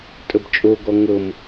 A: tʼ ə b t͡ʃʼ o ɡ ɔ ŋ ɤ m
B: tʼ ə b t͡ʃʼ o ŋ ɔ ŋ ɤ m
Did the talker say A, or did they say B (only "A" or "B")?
A